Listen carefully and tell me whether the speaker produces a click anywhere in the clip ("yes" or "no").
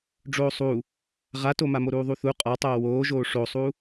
no